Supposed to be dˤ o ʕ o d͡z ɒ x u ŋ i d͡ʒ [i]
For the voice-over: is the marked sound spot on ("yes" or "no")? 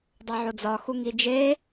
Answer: no